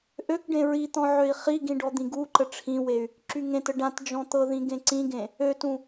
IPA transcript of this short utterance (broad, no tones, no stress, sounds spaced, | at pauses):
ʔ ø k ɖ ẽ ɹ i t̪ ɔ̃ ʕ ø i̯ χ i ɡ ĩ ɖ ɔ d̪ ĩ ɡ u ǃ ə ʈ͡ʂʰ ĩ w e y̯ | ǁ y ŋ ẽ t ə ɖ ã t d͡ʒ ɔ̃ t̪ ɤ ð ĩ ɡ ẽ ǀ ĩ ɡ ẽ | ø t ũ